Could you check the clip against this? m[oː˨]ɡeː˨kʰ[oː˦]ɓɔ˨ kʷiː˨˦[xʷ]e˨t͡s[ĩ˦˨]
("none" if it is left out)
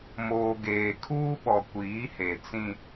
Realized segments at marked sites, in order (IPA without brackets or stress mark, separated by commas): oː˨, uː˦, h, ĩ˦